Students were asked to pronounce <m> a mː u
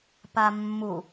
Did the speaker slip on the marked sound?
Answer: yes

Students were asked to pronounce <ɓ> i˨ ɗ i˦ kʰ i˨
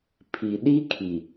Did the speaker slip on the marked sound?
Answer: yes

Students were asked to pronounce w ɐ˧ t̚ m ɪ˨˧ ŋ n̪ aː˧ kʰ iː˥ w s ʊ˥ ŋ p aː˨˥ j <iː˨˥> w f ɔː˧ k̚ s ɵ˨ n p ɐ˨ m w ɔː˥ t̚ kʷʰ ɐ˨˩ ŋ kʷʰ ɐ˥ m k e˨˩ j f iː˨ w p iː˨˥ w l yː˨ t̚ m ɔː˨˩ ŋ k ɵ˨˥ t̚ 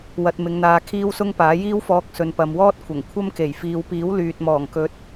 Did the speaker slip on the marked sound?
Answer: yes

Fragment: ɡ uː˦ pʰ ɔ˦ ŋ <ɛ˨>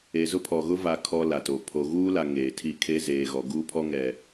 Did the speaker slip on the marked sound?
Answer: no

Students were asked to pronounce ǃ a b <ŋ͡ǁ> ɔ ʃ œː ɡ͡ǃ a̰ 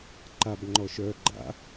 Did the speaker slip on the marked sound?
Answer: yes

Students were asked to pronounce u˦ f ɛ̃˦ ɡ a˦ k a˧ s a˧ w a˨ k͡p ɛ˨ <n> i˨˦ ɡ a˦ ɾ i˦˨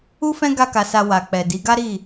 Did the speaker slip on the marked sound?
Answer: yes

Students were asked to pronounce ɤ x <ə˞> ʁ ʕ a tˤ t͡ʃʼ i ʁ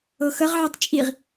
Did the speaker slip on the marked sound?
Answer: yes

